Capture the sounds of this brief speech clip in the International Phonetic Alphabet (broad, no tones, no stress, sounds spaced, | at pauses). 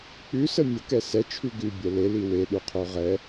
k͡p ʉ s ə mʲ ə k ɛ s ɛ t͡ʃʰ ʉ ɡ ʉ bʲ ɛ l e l i w e ɗ u qʰ o ʁ ɛ